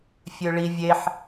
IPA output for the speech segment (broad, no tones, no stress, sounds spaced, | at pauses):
fʲ ø ɭ i vʲ e ħ